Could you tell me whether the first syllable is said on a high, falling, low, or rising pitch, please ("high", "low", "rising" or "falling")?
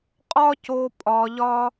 high